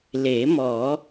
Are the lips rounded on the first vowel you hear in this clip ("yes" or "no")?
no